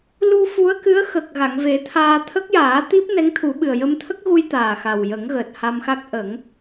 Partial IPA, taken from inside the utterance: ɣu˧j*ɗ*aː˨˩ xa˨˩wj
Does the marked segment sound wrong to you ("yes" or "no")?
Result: yes